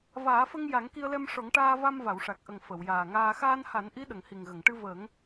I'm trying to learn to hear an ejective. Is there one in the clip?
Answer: no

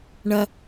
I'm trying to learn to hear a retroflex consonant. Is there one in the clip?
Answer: yes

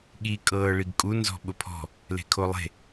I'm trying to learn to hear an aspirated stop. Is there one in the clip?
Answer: yes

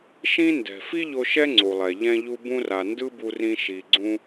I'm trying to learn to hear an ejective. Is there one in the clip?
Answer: no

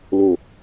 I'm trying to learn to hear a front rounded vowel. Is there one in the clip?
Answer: no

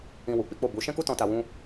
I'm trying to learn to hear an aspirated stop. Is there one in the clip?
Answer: no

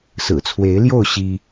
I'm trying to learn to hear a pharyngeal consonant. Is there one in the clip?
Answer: no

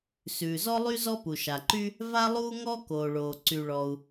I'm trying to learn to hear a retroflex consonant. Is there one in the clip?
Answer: yes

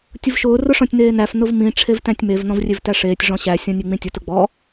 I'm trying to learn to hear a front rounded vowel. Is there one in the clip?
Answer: no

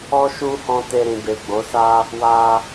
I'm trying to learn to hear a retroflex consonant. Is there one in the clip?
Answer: no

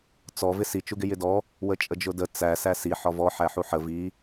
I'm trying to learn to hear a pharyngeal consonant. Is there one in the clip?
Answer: yes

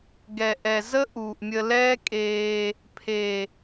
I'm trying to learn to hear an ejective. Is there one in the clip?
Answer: yes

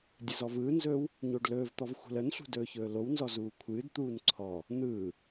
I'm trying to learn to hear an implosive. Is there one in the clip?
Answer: no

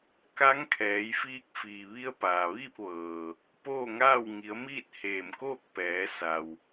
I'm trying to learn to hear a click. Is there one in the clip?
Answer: no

